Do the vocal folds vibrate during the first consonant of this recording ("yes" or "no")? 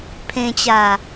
no